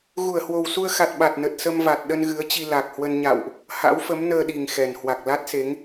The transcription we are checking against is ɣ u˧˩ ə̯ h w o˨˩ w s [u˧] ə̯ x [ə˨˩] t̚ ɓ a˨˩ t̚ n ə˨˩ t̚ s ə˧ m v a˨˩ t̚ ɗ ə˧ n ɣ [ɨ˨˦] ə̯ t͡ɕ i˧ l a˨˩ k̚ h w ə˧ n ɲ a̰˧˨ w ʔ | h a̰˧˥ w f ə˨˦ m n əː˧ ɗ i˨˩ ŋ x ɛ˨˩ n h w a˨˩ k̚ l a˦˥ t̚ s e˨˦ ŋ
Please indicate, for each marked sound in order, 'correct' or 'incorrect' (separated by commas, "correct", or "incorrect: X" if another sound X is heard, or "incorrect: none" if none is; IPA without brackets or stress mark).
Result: correct, incorrect: a˨˩, correct